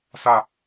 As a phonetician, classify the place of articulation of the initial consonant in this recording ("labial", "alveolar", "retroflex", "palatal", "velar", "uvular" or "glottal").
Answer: alveolar